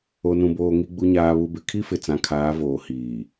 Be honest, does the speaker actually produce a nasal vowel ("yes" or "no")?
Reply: yes